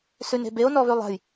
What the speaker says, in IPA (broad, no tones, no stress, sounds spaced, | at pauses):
s ʉ n e̤ b e o̯ n ɔ β ʉ lˠ a̤ j